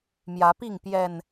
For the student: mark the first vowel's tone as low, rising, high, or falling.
rising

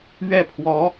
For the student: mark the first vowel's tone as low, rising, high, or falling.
falling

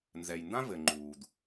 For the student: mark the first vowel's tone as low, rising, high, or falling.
low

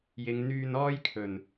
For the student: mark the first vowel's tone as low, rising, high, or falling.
low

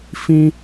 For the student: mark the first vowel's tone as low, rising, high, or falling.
high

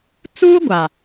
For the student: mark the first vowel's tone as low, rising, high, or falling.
high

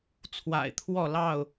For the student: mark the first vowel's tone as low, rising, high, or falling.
low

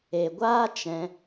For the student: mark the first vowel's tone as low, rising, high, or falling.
low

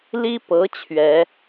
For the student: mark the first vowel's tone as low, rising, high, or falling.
high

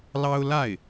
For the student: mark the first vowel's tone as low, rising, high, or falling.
high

